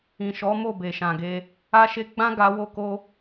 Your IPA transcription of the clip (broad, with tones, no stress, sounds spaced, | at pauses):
ĩ˨ ʃ ɔ˨˦ m o˦˨ b e˨ ʃ ã˨ ɡ e˧ | a˧ ʃ e˧ ɡ͡b ã˦ ɡ a˧ w o˦ k o˦